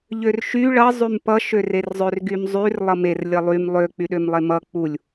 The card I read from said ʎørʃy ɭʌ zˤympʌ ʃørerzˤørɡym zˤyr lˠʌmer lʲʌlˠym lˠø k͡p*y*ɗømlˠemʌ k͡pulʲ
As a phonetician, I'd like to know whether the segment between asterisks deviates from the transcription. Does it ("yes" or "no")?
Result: no